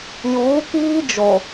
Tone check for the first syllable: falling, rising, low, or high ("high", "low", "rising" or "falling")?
rising